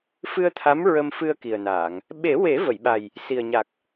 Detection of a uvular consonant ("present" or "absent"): absent